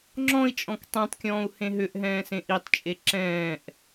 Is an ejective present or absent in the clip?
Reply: present